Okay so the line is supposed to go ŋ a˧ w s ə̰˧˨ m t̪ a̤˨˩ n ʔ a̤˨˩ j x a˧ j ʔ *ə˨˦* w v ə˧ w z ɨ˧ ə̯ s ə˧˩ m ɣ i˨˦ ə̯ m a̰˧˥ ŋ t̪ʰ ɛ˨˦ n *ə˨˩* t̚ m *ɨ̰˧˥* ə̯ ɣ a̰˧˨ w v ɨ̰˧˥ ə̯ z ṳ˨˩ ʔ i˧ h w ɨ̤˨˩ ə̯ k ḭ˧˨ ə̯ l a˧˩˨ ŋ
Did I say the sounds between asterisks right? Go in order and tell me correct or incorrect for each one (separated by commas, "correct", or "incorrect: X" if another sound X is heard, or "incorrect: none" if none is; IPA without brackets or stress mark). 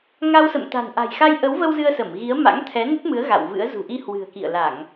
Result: correct, incorrect: ə˦˥, incorrect: ɨ˨˦